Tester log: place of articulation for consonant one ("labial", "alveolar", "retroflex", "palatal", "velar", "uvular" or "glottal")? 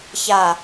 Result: palatal